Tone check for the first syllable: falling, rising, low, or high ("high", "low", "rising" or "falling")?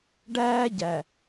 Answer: high